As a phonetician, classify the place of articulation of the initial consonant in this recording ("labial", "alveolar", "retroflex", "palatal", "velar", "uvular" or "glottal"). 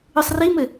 alveolar